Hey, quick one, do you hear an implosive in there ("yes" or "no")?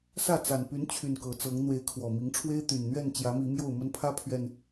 no